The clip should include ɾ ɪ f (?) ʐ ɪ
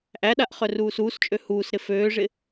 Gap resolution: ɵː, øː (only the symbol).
øː